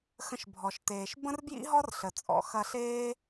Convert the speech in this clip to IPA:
x ə̃˧ ʃ bʱ ɔ˩ ʃ t eː˩ ʃ b ə̃˥ r b j ḭ˥ ɦ ɔ˥ r ɬ ə˩ t͡sʼ ɔ̰˩˧ x ɐ˧ ɬ eː˥

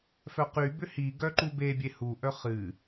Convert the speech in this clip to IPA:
f œ q y b ʏ h i ɡ œ ǃ u b e bʲ e h u ʔ œ χ ɨ

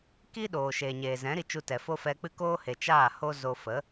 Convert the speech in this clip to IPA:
k i˦ ɗ oː˨ ʃ eː˨ ɲ eː˨ z ɛ̃˨˦ ɾ i˧ t͡ʃ u˧ t ɛ˨ f o˦ f ɛ˧ k͡p ɨ˦ k oː˦ h e˨ t͡ʃ aː˦˨ h o˦ z o˧ f ə˨˦

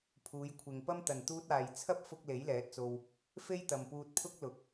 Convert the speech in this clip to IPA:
pʰ uː˨˧ j kʷʰ ɪ˨ ŋ p ɐ˥ m t̪ ɐ˨ n t̪ uː˧ t̚ aː˨ j t͡sʰ ɐ˥ p̚ f ʊ˧ k̚ l e˨˥ j l ɛː˨˥ t̚ t͡s o˧ w | f e˥ j t̪ ɐ˨ m p uː˧ t̚ pʰ ʊ˥ k̚ l ʊ˨ k̚

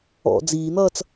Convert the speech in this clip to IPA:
ɔ̰ d͡z iː n̪ ʌː t͡s

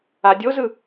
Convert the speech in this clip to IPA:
a dʲ o z ɯ

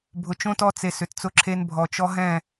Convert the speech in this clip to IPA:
bʱ ʊ˨ t͡ʃ õ˦ t ɔ˦ t͡s e˨ s ʏ˨ t t͡s ʊ˦ ǁʰ e˦ n bʱ ɔ˨ t͡ʃ ɔ˦ ɦ ɛ̃˦˨

